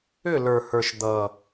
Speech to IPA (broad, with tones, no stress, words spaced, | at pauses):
ʏ˦˨lə˞˨hə˞˨ʃ d̪ʌ˨